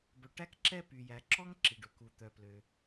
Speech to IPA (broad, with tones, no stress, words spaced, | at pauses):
bœ˩ ʈæ˥kǁɛ˥ py˩jæ˩ ǁɔ˥ŋǁi˩ɖɵ˩ ku˩t̪œ˩plø˩